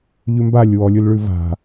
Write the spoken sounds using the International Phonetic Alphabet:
ʎ ʉ m b a lʲ w ɔ lʲ u l ɭ ʉ v a̤

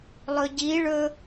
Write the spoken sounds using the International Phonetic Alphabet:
lˠ ɵ ɟ i ɭ ɵ

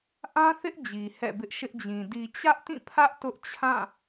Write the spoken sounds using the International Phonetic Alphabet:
ʔ ã˦ θ ɪ˦ ʔ d͡ʑ i˨ h ɛ̰˦˨ b ɪ˦ ʔ ʃ ɪ˦ ʔ d͡ʑ ĩ˨ d i˨ t͡ɕ ä˦ ʔ t ĩ˦˨ pʰ ä˦ ʔ t ʊ˦ ʔ t͡ɕʰ ã˦˨

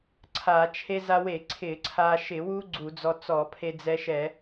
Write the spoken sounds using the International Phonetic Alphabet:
ǀʰ a˧˩˧ t͡ʃʰ e˧ z a˧ w e˧˩˧ ǀʰ ɪ˧˩˧ ǀʰ a˧ ʃ ɪ˧˩˧ w u˦˥ ɡ͡ǀ u˧˩˧ d͡z ɔ˧ t͡s ɔ˧˩˧ pʰ e˧ d͡z ɛ˧ ʃ ɛ˧˩˧

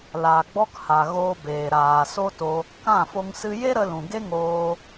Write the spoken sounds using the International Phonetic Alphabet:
l aː˨ ɡ͡b ɔ˧ k h a˨ ɣ oː˧ b eː˨ ɾ aː˨ s o˦ t o˧ | k ã˦˨ f o˧ ŋ s ɨ˧ j e˦ ɾ ə˧ l ũ˨ ɡ e˦ ŋ oː˧

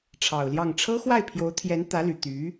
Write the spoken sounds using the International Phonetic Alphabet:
ʈ͡ʂʰ ɑ˨˩ ʊ̯ l j ɑ˥˩ ŋ ʈ͡ʂʰ ɤ˥ x w a˥˩ ɪ̯ pʰ j o˧˥ ʊ̯ t̪ʰ j ɛ˧˥ n t̪ ä˧˥ l y˨˩ t̪ y˧˥

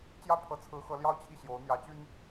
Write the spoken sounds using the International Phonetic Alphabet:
t͡ɕ j ä˥ pʰ ɤ˧˥ t͡sʰ ɹ̩˧˥ x ɤ˧˥ l j ɑ˥ ʊ̯ t͡ɕʰ i˥˩ ɕ j o˧˥ ʊ̯ n̪ j ä˧˥ t͡ɕ y˥ n

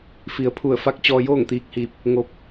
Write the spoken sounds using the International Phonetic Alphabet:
f i˩ ə̯ pʰ u˧˩ ə̯ f a˧˥ k̚ t͡ɕ ɔː˧ j oː˥˨ ŋ t̪ iː˧ k̚ h iː˧ p̚ | ŋ o˧ p̚

